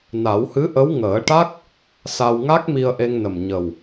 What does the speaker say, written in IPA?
na˨˩˦whɨ˧˥ʔə˧˥w ŋəː˨˩˦ʈa˦˥k̚ | sa˧w ŋa˦˥k̚mi˧ə̯ʔe˧ŋnə˨˩m ɲə˨˩w

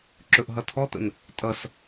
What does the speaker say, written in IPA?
ǁɵʔɦʌtʰɔt̪ə̰n | tʼʌs

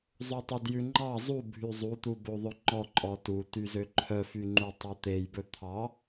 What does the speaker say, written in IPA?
zˤotˤudjʉŋ͡ǃɑ zˤubʱy zˤut̪ubo ðˤɵŋ͡ǃɔǃʼɔ tutyzø ǃʰœfy ŋ͡ǃutˤot̪ejbɵ t̪ʰɑ

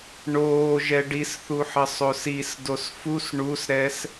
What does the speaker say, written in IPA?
ɳoːʒɛ ɖisθuħə sˤosis dosfus ɳusɾɛs

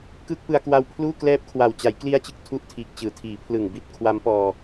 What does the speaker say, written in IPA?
kɯː˥˩k̚pɯ˧a̯kwa˦˥w pʰluː˥˩klɛː˦˥p̚kʰwa˨˩w t͡ɕa˩˦jkli˦˥a̯t͡ɕɯ˨˩k̚ tʰu˥˩ʔtʰiː˨˩k̚t͡ɕɯː˩˦tʰiː˩˦ pʰlɯ˨˩ŋbi˦˥t̚ kʰwa˦˥mpɔː˧

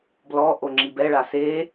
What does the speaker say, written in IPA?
blɔʔo ŋ͡ǁibɛɭa se

